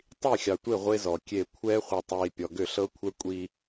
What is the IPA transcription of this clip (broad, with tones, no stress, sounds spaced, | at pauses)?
tˤ i˦˨ xʲ ɑ˨ tʷ e˦˨ ʁʷ e˦ z ɔ˨ kʲ e˦˨ kʷʰ ɛː˦ χʷ i˨ tˤ iː˨ pʲ ɔ˨ ɡ ʏ˦˨ ɬ ɤ˦ kʷʰ ɛ˦ kʷʼ i˦